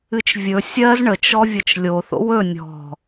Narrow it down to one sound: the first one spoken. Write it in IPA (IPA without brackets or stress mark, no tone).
ɨ